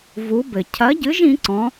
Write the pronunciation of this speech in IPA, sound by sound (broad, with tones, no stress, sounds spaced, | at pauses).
v u˨˦ b ɘ˨˩ cʰ ɐ˨˦ ɟ ɨ˨˦ ʒ ĩ˨˦ ǀ ɔ̃˨˦